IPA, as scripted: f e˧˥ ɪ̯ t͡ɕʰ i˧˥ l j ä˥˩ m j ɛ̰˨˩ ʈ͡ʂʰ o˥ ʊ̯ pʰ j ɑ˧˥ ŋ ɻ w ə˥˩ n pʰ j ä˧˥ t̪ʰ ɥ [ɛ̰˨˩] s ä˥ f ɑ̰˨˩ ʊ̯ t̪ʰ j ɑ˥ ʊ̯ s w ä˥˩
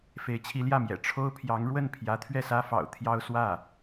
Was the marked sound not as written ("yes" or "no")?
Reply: yes